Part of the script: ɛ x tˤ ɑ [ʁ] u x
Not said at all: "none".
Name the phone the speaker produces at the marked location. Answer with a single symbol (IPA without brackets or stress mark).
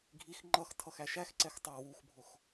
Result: w